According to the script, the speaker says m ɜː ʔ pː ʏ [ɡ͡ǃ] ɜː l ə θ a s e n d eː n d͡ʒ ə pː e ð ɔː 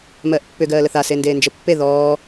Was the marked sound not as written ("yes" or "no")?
yes